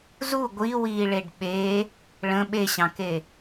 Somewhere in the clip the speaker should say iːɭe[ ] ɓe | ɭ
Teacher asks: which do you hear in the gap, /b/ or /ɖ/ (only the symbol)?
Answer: ɖ